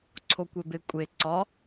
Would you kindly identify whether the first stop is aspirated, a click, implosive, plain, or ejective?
click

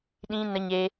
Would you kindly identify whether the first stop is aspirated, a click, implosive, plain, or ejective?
implosive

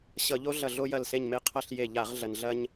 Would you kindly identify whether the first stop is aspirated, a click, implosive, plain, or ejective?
aspirated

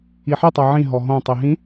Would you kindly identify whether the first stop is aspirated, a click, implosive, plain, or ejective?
plain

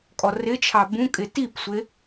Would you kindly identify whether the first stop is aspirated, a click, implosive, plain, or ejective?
ejective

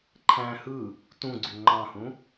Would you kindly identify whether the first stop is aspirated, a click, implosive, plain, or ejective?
click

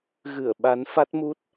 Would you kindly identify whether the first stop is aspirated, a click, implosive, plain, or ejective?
implosive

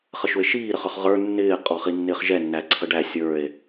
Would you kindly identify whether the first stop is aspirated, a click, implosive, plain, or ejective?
ejective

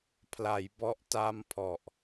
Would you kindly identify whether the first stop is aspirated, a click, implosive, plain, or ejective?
aspirated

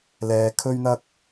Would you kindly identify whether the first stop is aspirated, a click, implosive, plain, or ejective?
aspirated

